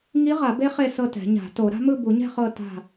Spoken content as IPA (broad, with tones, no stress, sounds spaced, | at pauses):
ŋ i˧˥ ʁ a˨˩˦ b e˧˥ χ e˥˨ s ɤ˥˨ t ɛ̤˨˩˦ ɲ a̤˨˩˦ t o˨˩˦ ɾ a̤˧˥ m ɯ˥˨ b u˨˩˦ ɲ ɛ̤˥˨ χ ɤ˥˨ t a̤˥˨